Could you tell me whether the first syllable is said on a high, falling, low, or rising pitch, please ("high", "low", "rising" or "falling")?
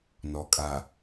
low